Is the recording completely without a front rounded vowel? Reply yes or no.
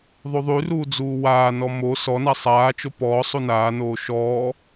no